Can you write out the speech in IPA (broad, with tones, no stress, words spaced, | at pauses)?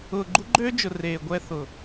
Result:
ʊː˨ɡ͡ǃu˦ɡ͡ǃøː˦d͡ʒʊ˨ reː˨ɡʷɛ˦ θʊ˨